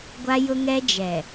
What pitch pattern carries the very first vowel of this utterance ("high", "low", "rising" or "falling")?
high